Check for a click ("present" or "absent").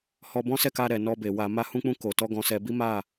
absent